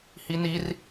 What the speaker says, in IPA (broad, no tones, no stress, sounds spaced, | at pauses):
h i n i r